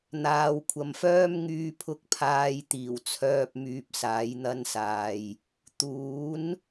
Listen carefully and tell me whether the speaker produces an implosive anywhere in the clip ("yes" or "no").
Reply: no